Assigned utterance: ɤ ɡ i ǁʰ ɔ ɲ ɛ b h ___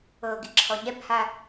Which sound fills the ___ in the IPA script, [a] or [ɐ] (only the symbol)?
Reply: a